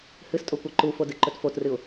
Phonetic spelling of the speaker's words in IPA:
h ɨ s tʼ o kʷ ɐ ǃ u f o d ɨ ǃ ɵ t f o t r ɨ ʊ̯

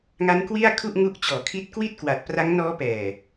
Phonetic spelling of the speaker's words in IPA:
ŋ a˦˥ n k w i˥˩ a̯ kʰ u˥˩ ʔ ŋ u˦˥ ʔ t͡ɕ ɔː˨˩ kʰ i˦˥ t̚ k w i˥˩ t̚ k w a˨˩ t̚ p r a˦˥ ŋ n ɔː˦˥ p ɛː˨˩

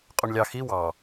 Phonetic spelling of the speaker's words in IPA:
qʼ u ɳ lʲ ɑ x i w ɑ

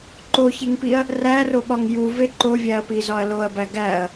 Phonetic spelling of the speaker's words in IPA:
ǃ o ç e ŋ p i ɐ̯ | r æ r o ɓ ɒ ŋ j u v e ǃ o vʲ æ ɐ̯ p i z ɒ ɐ̯ l o ɐ̯ b æ ɡ æ ɐ̯

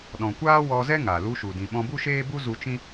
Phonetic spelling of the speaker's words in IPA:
ɗ ɔ̃˨ kʷ aː˦ w ɔ˧ z ɛ˦ ŋ a˨ l u˧ ʃ u˨ d ĩ˨ ɓ ɔ̃˧ b u˦ ʃ eː˦ b u˦ z u˧ t͡ʃ ĩ˦

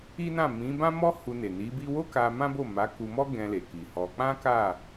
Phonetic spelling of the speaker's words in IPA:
i˦ n ã˦˨ m ĩ˨˦ b ã˦ m ɔ˦ h u˧ n e˨ n i˨˦ b i˦ w o˦ k a˧ m ã˦ b o˦˨ m a˨˦ k u˧ m ɔ˦ ɡ ɛ̃˧ l e˨ k i˨ h ɔ˧ k͡p ã˦ k a˦˨

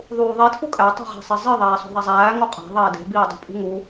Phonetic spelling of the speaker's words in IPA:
ðˤ uː ðˤ i tʰ u kʼ æ tˤ i̤ ʁ æ̤ sˤ i zˤ i ðˤ æː sˤ o̤ ðˤ æ zˤ æː ŋ o qʼ æ̤ ðˤ eː d e̤ b iː dˤ ṳ pʼ ṳ ŋ u

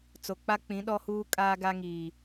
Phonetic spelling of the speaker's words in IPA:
t͡s o˨ k͡p a˦ k͡p ĩ˨˦ ɗ ɔ˦ h uː˦ kʼ aː˦ ɡ a˦ ŋ iː˨

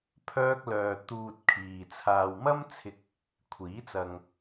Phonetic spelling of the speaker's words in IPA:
pʰ œː˧ k̚ l œː˨ t̪ uː˨ t̚ kʰ iː˨ t͡sʰ aː˨ w m ɐ˥ m t͡sʰ ɪ˧ k̚ | kʷʰ iː˨˥ t͡s ɐ˨ ŋ

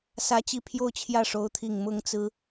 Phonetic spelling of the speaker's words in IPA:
s ä˥ t͡ɕ i˥˧ pʰ j o˥˧ ʊ̯ t͡ɕʰ j ä˥˩ ʂ o˧˥ ʊ̯ t̪ʰ i˥˩ ŋ m ʊ˥ ŋ t͡s ɹ̩˥

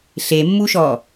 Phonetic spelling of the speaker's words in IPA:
ɬ e mː u ʃ ɔ

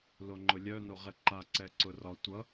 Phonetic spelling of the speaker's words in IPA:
l o ŋ͡ǃ ʊ lʲ œ n o ʁ ɛ ǃ a ǀ ɛ ǀ ʊ r ɒ tʷ ʌ

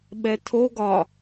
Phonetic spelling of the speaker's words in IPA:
ɓ ɛ tʰ o ɡ ɒ

